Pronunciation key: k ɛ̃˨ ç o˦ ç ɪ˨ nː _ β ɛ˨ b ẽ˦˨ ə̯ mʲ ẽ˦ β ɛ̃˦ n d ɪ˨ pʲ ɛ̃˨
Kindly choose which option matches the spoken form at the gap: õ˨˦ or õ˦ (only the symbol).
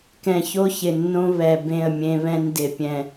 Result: õ˦